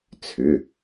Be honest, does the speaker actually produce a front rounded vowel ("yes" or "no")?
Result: yes